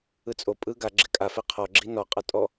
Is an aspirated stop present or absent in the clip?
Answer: present